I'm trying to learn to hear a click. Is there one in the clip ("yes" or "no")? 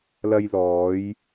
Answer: no